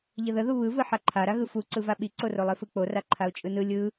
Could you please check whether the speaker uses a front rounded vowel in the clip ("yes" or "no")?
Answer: no